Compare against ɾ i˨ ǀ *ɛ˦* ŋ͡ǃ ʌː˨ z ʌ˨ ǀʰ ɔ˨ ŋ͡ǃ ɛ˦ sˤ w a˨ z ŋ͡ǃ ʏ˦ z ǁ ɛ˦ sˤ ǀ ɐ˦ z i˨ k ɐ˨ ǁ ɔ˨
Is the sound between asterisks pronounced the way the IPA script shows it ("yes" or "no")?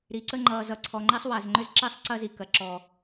no